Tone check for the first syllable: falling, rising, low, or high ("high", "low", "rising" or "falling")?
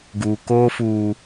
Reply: low